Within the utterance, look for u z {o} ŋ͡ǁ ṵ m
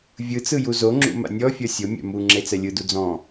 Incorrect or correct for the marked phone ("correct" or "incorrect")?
correct